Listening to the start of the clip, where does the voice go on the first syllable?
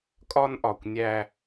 high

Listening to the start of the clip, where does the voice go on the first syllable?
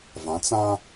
rising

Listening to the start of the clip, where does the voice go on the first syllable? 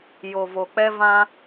low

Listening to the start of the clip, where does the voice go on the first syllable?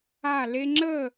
falling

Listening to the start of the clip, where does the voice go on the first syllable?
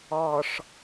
low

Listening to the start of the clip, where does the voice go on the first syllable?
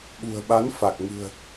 low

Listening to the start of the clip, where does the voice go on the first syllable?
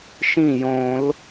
falling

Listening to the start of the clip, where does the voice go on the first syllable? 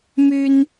high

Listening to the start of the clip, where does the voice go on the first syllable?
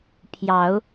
low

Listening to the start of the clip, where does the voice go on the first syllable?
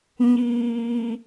low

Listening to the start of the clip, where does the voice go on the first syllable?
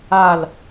falling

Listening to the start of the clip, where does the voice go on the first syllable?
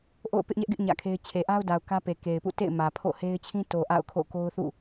falling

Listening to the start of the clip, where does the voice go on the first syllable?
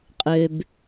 low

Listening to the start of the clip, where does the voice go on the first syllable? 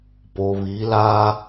low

